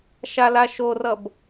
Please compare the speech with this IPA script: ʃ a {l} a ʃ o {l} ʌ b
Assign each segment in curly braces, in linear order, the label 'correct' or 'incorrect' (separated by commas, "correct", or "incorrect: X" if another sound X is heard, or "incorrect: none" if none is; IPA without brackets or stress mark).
correct, incorrect: r